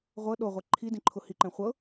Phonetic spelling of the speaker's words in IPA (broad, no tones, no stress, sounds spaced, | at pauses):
ʁʷ ɤ ɗ o ʁʷ ɛ ǃʰ i d ĩ ǃʰ ʊ h i ǃ ɛ̃ χʷ ɤ